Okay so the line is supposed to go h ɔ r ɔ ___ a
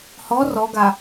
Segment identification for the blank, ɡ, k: ɡ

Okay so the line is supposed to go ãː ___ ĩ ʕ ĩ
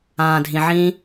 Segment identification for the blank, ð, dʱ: dʱ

